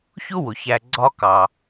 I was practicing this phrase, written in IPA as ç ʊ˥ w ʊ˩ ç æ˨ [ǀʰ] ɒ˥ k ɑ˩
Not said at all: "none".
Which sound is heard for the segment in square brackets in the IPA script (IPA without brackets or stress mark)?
ɡ͡ǀ